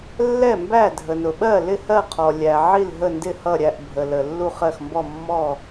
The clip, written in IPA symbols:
lːɛ˥˩ mbæ˥˩dʱə˩nʊ˩ ɓɜ˥˩lɪ˥˩hɜ˥˩qʰɔ˩ lʲæ˩ʕi˥˩l ɦə˥˩ndɪ˥˩hʌ˥˩ɾʲæ˥˩ʔ bʱə˩lə˩ lːu˥˩χɜ˥˩xmbɔ˥˩mːɔ˥˩

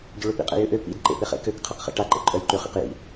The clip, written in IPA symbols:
ɟøɭøpḭqʼḛ jʏʔø pḭd ǃḛpeχḛkøk qʰeqχḛʈaǃḛ ǃʼœjǃʏ χḭqjḭ

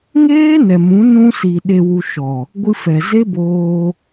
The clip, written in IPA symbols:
ŋeː˦ nɛ˨mũ˨˦ nũ˧si˨ ɗe˨wu˨ ʃɔ˨ | ɡʷɨ˧fɛ˨ ze˦boː˧

